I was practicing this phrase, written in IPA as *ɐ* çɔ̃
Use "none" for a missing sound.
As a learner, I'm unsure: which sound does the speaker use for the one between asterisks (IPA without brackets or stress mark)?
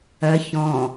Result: ɐ